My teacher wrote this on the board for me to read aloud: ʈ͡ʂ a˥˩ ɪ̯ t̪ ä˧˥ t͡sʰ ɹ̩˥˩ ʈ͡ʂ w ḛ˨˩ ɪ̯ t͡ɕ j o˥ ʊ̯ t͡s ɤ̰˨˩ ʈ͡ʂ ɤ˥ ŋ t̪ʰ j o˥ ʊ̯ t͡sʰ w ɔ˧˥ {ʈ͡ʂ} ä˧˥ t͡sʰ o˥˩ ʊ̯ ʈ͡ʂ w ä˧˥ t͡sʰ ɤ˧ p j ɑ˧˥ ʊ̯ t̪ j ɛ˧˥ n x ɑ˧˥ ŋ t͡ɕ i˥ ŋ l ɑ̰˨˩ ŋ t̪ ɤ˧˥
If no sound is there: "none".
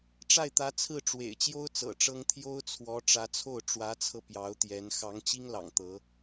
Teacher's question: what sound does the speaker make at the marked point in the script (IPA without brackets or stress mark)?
ʈ͡ʂ